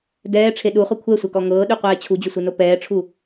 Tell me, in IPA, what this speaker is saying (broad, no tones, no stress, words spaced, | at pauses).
dɛːʈ͡ʂʰe ɗuχʊ kʷʰɛsʷɛkɔ ŋɤːɗyqʷɛː t͡ɕʰud͡ʑʊsʷeno pɛːʈ͡ʂʰu